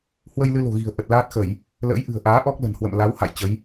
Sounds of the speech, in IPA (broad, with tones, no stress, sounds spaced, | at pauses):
h w ə˧ j l ɨ˧ l o̤˨˩ ɣ i̤˨˩ ə̯ ʔ ə˨˩ t̚ l aː˦˥ t̚ x ə˧˩˨ j | l ə̰ː˧˥ j ʔ ɨ̤˨˩ ə̯ ʔ aː˨˦ ʔ ɔ˦˥ k̚ l ə̤˨˩ n h w ə̰˧˨ m l a˨˦ w h a̰˧˨ j t͡ɕ ə˨˦ j